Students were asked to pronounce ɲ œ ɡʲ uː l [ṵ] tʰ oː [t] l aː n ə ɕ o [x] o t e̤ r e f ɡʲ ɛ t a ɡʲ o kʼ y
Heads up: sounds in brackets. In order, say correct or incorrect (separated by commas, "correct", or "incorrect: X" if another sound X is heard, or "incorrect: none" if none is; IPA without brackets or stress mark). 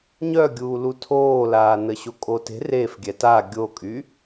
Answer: incorrect: u, incorrect: none, incorrect: kʼ